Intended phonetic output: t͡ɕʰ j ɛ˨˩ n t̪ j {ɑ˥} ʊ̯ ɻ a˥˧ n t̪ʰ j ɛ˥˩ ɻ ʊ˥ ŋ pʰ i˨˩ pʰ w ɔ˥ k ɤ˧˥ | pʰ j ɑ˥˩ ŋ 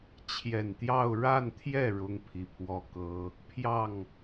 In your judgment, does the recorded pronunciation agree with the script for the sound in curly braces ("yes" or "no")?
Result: no